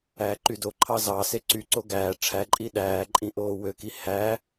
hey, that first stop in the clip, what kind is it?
click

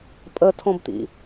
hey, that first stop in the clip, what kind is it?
ejective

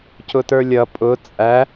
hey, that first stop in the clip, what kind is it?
plain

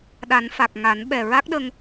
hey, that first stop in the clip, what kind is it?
implosive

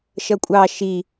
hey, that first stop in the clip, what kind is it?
ejective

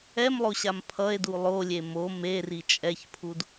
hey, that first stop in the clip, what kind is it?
aspirated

